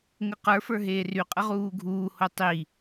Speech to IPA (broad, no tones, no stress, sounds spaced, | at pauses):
ŋ ə q ə˞ f ə˞ ɦ eː r y qʼ ə ʁ uː ɡʱ uː h o tˤ i